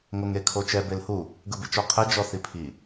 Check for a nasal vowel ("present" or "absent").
absent